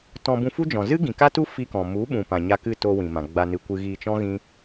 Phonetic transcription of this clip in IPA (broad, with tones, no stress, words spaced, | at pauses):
tɔ̃˧ bũ˧fu˦d͡ʒɔ̃˨ zɨ˦ɡĩ˨ka˦tu˦ fi˧kɔ̃˨ mu˨˦ɓũ˨pã˨ ɲa˧kɨ˦˨toː˧ wĩ˨mã˨ ɡ͡ba˧nɨ˧ kʷɨ˧ɣiː˧t͡ʃɔ̃˦ ɣĩ˦